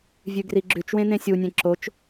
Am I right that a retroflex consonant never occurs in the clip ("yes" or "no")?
yes